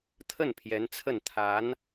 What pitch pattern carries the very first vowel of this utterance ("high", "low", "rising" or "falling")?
falling